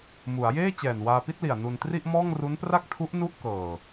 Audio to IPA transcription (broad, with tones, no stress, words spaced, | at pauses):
mu˩˦a̯jeː˥˩ t͡ɕɛː˨˩nwaː˧pi˥˩t̚li˨˩a̯ nu˧ntri˥˩ʔ mɔː˥˩ŋru˦˥n pra˥˩k̚tʰu˦˥ʔ nu˥˩ʔkɤː˨˩